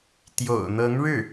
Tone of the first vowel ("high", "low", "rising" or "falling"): low